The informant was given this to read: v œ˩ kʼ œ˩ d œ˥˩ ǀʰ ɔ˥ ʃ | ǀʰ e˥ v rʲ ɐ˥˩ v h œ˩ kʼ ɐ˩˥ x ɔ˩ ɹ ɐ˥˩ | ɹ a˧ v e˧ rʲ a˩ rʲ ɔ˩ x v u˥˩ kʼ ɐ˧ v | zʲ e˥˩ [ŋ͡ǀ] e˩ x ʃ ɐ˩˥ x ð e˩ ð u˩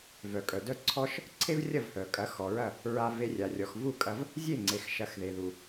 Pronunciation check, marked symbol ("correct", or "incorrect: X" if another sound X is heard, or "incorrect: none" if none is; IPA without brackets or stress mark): correct